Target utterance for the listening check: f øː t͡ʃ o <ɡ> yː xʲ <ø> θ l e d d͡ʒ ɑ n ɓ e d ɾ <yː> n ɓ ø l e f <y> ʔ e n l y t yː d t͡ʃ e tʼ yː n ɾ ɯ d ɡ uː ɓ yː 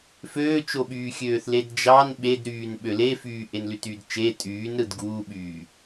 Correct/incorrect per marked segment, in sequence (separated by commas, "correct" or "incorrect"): incorrect, incorrect, correct, incorrect